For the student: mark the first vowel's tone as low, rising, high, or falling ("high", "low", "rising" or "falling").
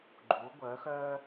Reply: rising